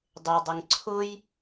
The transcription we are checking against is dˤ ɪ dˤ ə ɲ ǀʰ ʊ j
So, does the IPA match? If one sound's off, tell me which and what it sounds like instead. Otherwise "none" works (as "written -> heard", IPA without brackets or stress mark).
ɲ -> ŋ